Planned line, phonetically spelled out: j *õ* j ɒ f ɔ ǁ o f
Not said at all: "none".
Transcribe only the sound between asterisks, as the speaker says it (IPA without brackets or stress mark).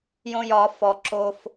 õ